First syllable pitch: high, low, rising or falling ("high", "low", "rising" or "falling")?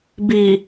low